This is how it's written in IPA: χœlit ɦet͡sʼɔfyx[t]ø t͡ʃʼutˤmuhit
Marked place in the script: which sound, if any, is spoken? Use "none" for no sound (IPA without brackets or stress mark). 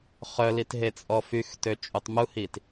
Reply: t